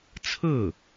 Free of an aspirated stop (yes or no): no